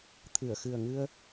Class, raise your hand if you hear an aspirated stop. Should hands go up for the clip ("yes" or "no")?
yes